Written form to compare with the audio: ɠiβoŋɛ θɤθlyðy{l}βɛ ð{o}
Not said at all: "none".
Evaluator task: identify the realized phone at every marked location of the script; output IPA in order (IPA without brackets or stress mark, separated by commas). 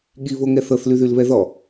l, ɔ